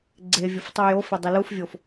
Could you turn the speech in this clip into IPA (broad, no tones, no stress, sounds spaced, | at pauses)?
ɡ͡ǀ e vʲ o f tˤ u j o f e dˤ i l u f vʲ o f